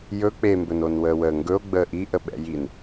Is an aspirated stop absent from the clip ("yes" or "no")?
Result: yes